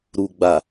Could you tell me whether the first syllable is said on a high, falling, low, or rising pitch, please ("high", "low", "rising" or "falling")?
low